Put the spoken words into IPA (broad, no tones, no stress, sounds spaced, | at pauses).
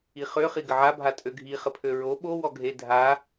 i χ ø χ i ɡ ə ʕ a bʱ a tʼ ø ɡʱ i χ ə pʰ ø ɹ o ɓ o w ɔ ɡʱ e dʱ a